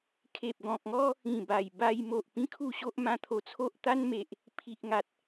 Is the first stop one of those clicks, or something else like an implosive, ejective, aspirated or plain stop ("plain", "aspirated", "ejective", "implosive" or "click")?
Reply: aspirated